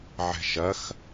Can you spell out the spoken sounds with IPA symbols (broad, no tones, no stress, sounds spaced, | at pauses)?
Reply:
ʕ ɛ̤ ʃ ɐ x